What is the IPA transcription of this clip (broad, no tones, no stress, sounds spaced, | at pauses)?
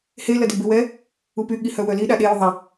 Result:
h e l ɐ d ɪ b ɪ w ɛ | u p y ɠ i h œ w œ l i ɗ a ɗ e j ʏ ðˤ ɐ